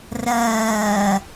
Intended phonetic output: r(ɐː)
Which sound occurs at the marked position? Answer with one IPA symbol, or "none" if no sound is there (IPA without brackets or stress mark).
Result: ɐː